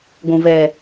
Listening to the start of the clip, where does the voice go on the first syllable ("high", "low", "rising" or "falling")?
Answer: low